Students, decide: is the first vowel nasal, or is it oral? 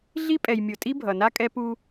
oral